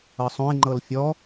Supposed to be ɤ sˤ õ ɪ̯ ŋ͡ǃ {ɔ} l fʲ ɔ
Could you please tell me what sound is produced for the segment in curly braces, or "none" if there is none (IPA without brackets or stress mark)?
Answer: ɤ